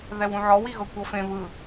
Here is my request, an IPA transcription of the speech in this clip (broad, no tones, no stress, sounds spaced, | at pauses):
ð ɛ w ũ ʕ ɔ w i ɣ ɤ kʷ ɤ f ẽ β ɯ